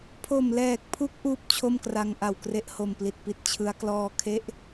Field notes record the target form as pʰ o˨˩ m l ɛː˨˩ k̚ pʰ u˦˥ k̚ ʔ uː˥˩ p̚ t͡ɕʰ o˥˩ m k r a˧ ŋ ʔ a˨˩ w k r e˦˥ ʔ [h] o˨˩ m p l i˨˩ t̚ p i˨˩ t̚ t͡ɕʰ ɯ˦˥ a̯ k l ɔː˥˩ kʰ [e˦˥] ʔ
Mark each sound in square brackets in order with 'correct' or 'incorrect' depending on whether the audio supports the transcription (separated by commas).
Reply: correct, incorrect